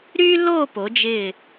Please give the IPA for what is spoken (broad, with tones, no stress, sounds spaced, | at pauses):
ɾ y˥ l o˥˧ p o˩˧ d͡ʒ ɪ˧˩